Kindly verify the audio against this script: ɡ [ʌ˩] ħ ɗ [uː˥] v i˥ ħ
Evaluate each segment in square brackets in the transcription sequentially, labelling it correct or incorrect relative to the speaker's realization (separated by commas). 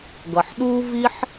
correct, correct